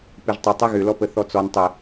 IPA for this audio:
pɪʒtˤɪ tˤeɣʏlɔpə θɔt͡sɔn tˤə

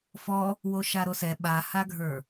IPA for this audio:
fɔ | woʃaɾosɛ ɓahaɡʱə˞

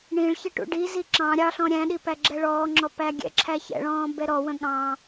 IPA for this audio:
ɳĩɭçɪ ʈṵɖizi ǁɑ̃ ɾʲɑɬɔ̃ ɾʲæ̃ɗi pæɡ͡ǁɛɭɔːŋ͡ǁɔ pæɡʲɛ̰ǁʰæ çɛ̰ɭɔ̃ː bɛɾɔwə̃ ɠɑ̃

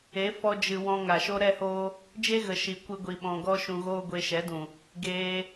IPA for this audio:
e˨˦ fɔ˧d͡ʒɨ˨ wɔ̃˧ŋa˨ʃo˦ ɾɛ˦hoː˦ | d͡ʒe˦ɣə˨ ʃi˨kʷɨ˧ɡʷi˨ ɓɔ̃˧ ɡɔ˦ʃũ˧ɣoː˦ ɡʷe˧ʃɛ˨˦dũ˨ | ɡeː˧

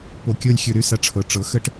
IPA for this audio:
po˨˩kʲɤ˦˨lʲxʲɵ˧˩˧ɾy˦˨ sa˧˥ʈ͡ʂʰɤ˨˩ ʈ͡ʂɤ˩˥xə˦˨ʈ

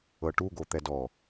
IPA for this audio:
ɤʈuɡo t̪ɛdɔ

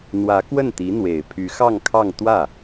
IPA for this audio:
n̪wä˧˥kwə˥˩nt̪i˧˥n̪we˨˩ɪ̯ pʰy˧˥xɑ˥˧ŋkʰɑ˥˧ŋ t̪wä˥˩

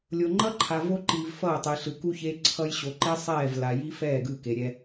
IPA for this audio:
lʲo˨ŋ͡ǃʌ˦ǃʰa˨ vo˦ǃiː˨v fʌː˦˨tˤi˨ɬɯ˨ ku˦çe˦ǀʰʌ˦j ɕo˨ǃe˦ sˤɛː˦˨v la˨ji˦fɛː˦˨ ɡɯ˦˨ke˨ɾʲɛ˦

